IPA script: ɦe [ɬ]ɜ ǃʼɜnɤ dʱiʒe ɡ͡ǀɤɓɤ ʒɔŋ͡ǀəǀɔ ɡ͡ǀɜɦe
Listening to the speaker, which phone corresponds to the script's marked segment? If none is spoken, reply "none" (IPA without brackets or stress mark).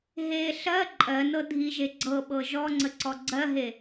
ɬ